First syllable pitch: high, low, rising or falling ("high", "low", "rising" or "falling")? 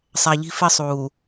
low